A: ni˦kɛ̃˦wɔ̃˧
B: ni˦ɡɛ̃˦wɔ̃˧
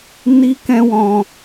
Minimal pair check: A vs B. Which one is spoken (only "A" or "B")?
A